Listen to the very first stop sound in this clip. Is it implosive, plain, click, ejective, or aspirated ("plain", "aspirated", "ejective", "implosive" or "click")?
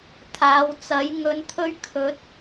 aspirated